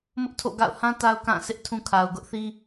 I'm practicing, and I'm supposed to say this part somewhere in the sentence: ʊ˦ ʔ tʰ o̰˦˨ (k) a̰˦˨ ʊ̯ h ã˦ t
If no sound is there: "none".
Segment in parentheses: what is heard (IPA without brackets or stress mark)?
ɡ